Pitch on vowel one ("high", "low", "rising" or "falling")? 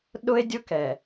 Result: high